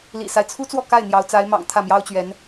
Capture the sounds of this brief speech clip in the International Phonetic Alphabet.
lḭ˨˩sa˦ɪ̯t͡sʰu˥t͡swɔ˥˧ ka˥˩ɪ̯n̪jɑ˧˥ʊ̯ t͡sa˧˥ɪ̯mɑ̰˨˩ŋ t̪ʰä˥˩mjɑ˥ʊ̯t͡ɕɥɛ˧˥n

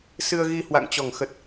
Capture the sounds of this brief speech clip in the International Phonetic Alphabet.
sɨ˧ə̯ɣi˧ hwa̰˧˨ŋt͡ɕɔ˧˩ŋxə˨˩t̚

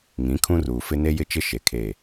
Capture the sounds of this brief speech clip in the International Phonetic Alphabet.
ŋĩ˨˦ kʰũ˦ruː˨ fɪ˦ ne˦jɪ˦t͡ʃɪ˦ ʃe˨kʰeː˦˨

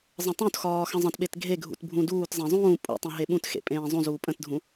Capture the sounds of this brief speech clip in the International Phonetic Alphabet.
zˤə̃tˤũtxɒː xə̃zˤə̃tɓet ɡʱeɡʱṵt bʱũduːtzˤẽ zˤũː pʼṵtˤẽ ɦeɓũtxḛ pʼẽːzˤũzuː pʼə̃tdʱũ

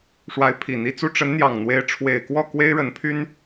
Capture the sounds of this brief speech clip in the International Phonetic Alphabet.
ʂwa˧˥ɪ̯pʰi˨˩n̪i˧˥t͡su˥˩ ʈ͡ʂə˧˥nn̪jɑ˨˩ŋn̪we˧˥ɪ̯ ʈ͡ʂʰwe˨˩ɪ̯kwɔ˥˩ kwe˥ɪ̯ɻə˧˥npʰy˥n

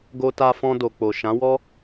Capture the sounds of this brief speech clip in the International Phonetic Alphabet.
ɡo˧ta˧fɔ̃˧do˨ k͡po˨ ʃã˨˦wɔ˦

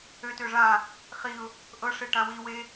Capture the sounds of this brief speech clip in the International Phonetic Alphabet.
øtø ʐã | χiʊ̯ | ʔɤʂe ʈãwiwe

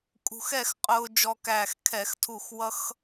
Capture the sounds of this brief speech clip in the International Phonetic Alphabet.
kʼṳ˧xɛ˥˨xqʼʊː˧ d͡ʒɔ˧kæː˧˩x kʰɛ˧˩˧xtʰu˧˩x wʌ˧x

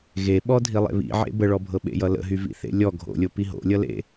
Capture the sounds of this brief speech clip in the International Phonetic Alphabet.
ɣeɓɔdʱi lˠḛβḭ ʕḛbəɭɔbʱɤ ɓḛjʌlə̰ɦy vḭθḛlʲɔ ɡʱo̰lʲo piɦo̰lʲʌlḛ

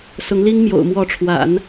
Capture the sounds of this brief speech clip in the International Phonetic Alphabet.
sʊ˧˥ŋli˥ŋ mjo̰˨˩ʊ̯mwɔ˧˥ʈ͡ʂʰwa̰˨˩˦n

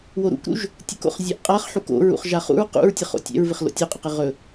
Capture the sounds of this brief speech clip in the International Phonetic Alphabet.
woɾṵkɾṵʒ | tʲəko̰χ zʲɛʔqʼaχħuk o̰ɹṵχ ʒaχṵɹ qṵɹtʲəχo̰ tʲɛ̰ɹvɪχ lo̰tʲoqʼəqɪ ʁɵ

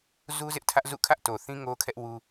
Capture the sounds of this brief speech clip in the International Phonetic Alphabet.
zu˦zɪ˦ʔtʰä˦ʔzṵ˦˨ kʰä˦ʔto˨θĩ˦ ŋo˦kʰɛ˦ʔ wu˦

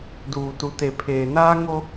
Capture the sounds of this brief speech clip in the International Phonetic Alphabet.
duː˨tu˨te˨ pʰeː˨naː˦ŋo˦

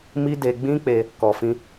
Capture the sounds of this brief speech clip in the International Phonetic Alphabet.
mi˦de˧ ɡ͡bĩ˦k͡pe˧ | kɔ˨fĩ˧

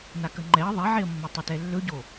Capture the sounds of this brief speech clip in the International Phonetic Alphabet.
nakəŋ͡ǃɛə̯ ðˤɛʕeə̯mːɵ tˤɵtɛlːɵɟo

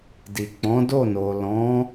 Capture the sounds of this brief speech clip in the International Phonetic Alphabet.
di˨k͡pɔ̃˨˦do˦˨ no˨lɔ̃˨˦

